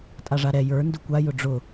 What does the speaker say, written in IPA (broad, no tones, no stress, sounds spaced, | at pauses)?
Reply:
tʼ a ʐ a ɾ ɛ j ə˞ n d ʊ kʷ a j ʊ ɖ͡ʐ ʊ